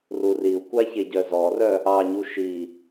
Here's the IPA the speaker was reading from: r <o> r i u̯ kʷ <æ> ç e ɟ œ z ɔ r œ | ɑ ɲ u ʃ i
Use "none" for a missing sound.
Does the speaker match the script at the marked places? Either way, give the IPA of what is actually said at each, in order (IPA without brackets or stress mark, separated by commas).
u, a